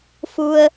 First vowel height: high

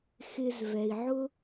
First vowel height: high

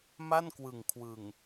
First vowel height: low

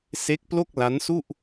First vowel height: mid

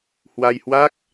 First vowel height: low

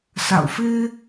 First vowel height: low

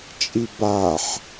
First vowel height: high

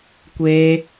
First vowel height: mid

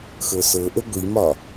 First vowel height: mid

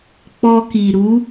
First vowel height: mid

